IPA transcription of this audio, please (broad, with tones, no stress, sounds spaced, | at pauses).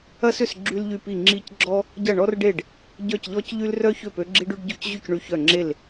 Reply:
ɐ˥ s ʏ˥˨ s ɡ͡ǁ y˥ l ʎ y˥˨ p i˥˨ ŋ͡ǁ i˥˨ c ɡ͡ǁ ɔ˥ | ɟ ɐ˥˨ ɳ ɔ˥ r ɖ e˥˨ ɖ | ɟ œ˥˨ c ʎ ɔ˥ c ʎ y˥ l r œ˥ ç ø˥˨ p ø˥ ɡ͡ǁ i˥ ɖ y˥ ɖ ɟ ʊ˥˨ c ʑ y˥˨ c ɳ y˥˨ ç œ˥˨ ŋ͡ǁ e˥˨ l